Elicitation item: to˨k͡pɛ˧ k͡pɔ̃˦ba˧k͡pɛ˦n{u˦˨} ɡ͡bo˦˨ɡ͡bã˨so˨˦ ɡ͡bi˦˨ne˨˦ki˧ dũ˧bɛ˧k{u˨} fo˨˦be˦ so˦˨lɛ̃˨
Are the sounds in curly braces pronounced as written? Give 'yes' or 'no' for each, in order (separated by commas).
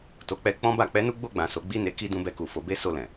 no, yes